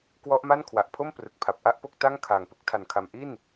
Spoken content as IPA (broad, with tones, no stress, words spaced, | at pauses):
kwɔ˦˥ʔma˥˩n kʰwa˨˩ʔpʰo˥˩m prɯ˨˩k̚pʰa˨˩p̚ʔa˥˩ʔpo˥˩k̚ ta˥˩ŋ kʰaː˨˩ŋpɯ˦˥k̚tʰa˨˩nkʰa˨˩m ʔi˥˩n